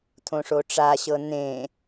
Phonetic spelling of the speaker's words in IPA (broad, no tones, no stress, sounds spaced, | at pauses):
t̪ʰ õ ʂ o ʈ͡ʂ a ɕ ɤ n̪ ẽ